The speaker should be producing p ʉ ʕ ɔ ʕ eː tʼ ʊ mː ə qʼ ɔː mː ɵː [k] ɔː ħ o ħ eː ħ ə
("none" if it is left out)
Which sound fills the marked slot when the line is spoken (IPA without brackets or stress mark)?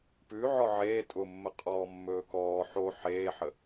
k